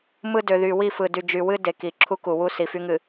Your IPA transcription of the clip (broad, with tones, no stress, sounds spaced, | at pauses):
m ɯ˦ d ø˨ ð y˨ w i˦˨ f ɯ˨ d y˨ d͡ʒ y˨ w ɨ˦ d e˨ k i˨ ǁʰ u˦ k u˨ w u˦ s i˨ f y˦ ŋ ɨ˨